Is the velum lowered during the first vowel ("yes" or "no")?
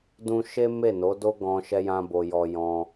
yes